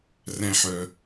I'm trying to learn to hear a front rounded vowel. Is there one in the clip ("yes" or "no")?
yes